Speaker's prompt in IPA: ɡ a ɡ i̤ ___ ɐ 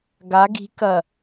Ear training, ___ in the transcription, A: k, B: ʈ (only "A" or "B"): A